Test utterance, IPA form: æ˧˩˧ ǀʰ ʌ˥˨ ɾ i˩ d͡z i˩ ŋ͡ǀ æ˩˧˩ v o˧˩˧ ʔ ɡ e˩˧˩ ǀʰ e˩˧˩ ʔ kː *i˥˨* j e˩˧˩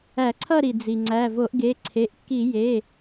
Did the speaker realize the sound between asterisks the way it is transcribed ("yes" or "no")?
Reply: no